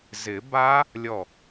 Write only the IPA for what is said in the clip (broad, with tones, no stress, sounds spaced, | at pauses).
z ɪ˨˩˦ b a˦˥ | lʲ ɔ˥˩